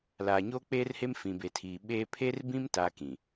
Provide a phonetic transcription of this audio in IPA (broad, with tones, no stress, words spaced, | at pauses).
laː˨ɲoː˦k͡peː˦rhe˦m fĩ˨be˨tʰiː˨ ɓeː˦ pʰe˦rbĩ˦m ta˦kĩ˨